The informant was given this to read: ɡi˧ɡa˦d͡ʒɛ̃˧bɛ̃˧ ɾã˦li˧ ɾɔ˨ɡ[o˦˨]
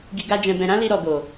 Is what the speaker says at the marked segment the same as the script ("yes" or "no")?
no